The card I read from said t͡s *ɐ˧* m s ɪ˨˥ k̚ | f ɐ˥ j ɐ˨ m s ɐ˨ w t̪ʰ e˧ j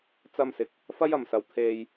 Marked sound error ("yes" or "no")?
no